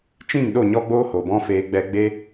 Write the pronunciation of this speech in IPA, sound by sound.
t͡ʃ ĩ˦˨ ŋ ɗ o˦˨ ɲ ɔ˦ ɡ͡b oː˦ h o˨ b ɔ̃˦ f eː˧ ɡ͡b ɛ˧ ɡ͡b e˦

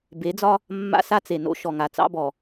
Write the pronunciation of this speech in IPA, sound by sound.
b e˨˦ d͡z ɒ˦ | mː a̰˦ s a˦ t͡s e˨ n o̰˦ ʃ ɔ˨ ŋ a˨ t͡s ɑ̰˦ b ɔ˨

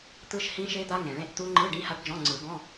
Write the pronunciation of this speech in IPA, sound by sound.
t̪ ɯ˦˥ ʃ h ĩ˦˥ ʃ e˦˥ d̪ a˦˥ ŋ ẽ˨˩˦ ɭ ẽ˧˥˧ ʔ t̪ u˦˥ ŋ͡ǃ ɯ˧˥˧ ɖ ĩ˧˥˧ h a˦˥ ʈ d͡ʒ ɔ̃˧˥˧ ŋ͡ǀ ɯ˨˩˦ ɡ ɔ̃˧˥˧

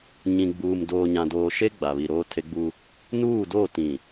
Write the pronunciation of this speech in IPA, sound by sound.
ɲ ĩ˨ ɡ͡b uː˨ m d oː˨ ɲ ã˨ d oː˨ ʃ e˦ ɡ͡b a˨ β i˨ ɾ oː˦ tʰ e˦ ɡ͡b u˦ | n uː˦˨ d o˦˨ t ĩ˨

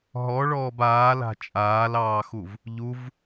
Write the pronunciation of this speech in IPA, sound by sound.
ɦ ɔ ɭ ɔː b aː l a̤ t͡ʃʼ aː l ɑː x u v | ʎ u v

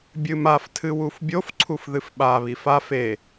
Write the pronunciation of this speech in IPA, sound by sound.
bʲ ɨ m a f tʰ ɨ w u f bʲ o f ǀʰ u f ð ɨ f ɓ a β i f a f e

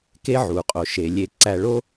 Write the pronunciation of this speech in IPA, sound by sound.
k e˦ ʕ u˩ qʼ o˩ ʃ e˩ lʲ e˨ ǀ æ˨ ɭ o˦

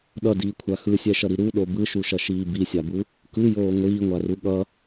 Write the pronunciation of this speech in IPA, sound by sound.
ɗ ʌ d iː kʷʰ a x ɯ sʲ ɛ ʃ ʌ ɾ i ɾ u ɗ o b ɯ ʃ u ʃ ʌ ʃ iː b i sʲ a b u | k ɯ j oː ŋʷ iː ŋʷ a r u ɠ ʌ

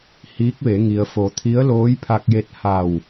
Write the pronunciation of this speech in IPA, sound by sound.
h iː˧˥ k̚ ʋ e˩˧ ŋ i˩ ə̯ f o˩˧ t̪ʰ i˧˥ ə̯ l oː˧˥ j pʰ a˧ k̚ j e˧ t̚ h a˧˩ w

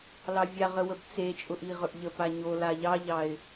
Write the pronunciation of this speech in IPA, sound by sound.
l ɑ vʲ a ʁ ə w ə b t͡s e t͡ʃʼ ʊ ʔ i ʁ ɵ ʔ ʎ ə p a ɲ o l a ʎ ɑ ʎ ɑ ɪ̯

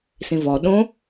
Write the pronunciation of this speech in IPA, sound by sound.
s ĩ v ɔ ɗ õ

